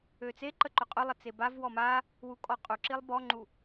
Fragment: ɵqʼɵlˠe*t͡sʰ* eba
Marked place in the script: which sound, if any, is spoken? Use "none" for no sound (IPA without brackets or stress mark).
t͡s